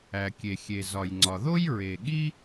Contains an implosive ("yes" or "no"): yes